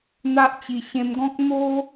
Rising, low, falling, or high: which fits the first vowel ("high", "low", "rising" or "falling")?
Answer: high